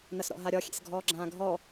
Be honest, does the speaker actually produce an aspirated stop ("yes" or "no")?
no